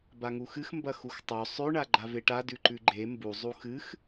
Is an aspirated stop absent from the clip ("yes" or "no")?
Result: yes